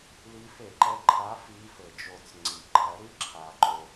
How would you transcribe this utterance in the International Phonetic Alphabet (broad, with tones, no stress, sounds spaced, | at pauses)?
l i˨˦ f e˧˩˧ ǃ ɛ˨˦ ǃʰ a˨˦ f i˨˦ f ɘ˩ d͡ʒ o˧˩˧ t͡s ŋ͡ǀ i˩ ɡ͡ǃ ɐ˧˩˧ ɾ ɨ˨˦ ǁʰ a˩ ǃ o˩